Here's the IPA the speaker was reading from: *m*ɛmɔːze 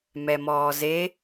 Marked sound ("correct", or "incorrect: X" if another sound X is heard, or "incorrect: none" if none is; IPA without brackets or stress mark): correct